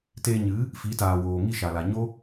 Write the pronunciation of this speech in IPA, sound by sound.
t eː˧ ɲ ɨ˨˦ | f i˨˦ t aː˨ w oː˨ ŋ i˦˨ ʃ a˨ l a˨ ɲ o˦

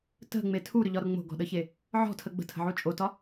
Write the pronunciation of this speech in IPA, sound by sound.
t ə̤ ŋ͡m e tʰ u ɾ ʏ ʎ ɒ ɾ ʊ ŋ͡m o̤ ɡ ɔ̤ ɗ ə ç e | ʕ ɔ̤ tʰ ə ɡ͡b ə̤ tʰ ə̤ ʕ u t͡ʃʼ o t ɒ

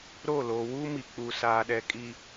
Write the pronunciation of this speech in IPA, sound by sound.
ɾ o˦˨ l oː˨ w uː˦ m i˨ k͡p u˨ s aː˨ ɗ ɛ˨ kʼ i˨

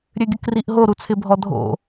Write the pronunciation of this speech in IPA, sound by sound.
ɾʲ ø ɡʲ ə k r i ʔ ɦ o ɾ u t͡sʰ ɪ bʱ ɔ dʱ o̰

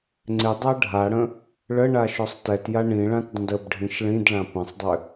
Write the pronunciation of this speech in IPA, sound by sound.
ŋ͡ǀ ɪ dˤ a ɖʱ a ɽ ə̃ | ɭ ə ɳ a ʃ œ sˤ t ɛ t j a ɳ ĩ ɭ ã t dˤ ə̃ d ə b ɖʱ ĩ ʃ ɭ ĩ d ɭ ã p ə̃ sˤ dˤ ʏ

